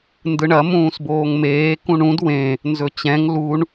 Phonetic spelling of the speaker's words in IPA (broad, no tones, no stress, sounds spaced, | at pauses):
n d ɯ ɳ ɐ m ũː s b oː ŋ m eː k ũ ɳ ũ d w ẽ | n z ɵ t͡ɕ ɛ̃ ŋ l u ɳ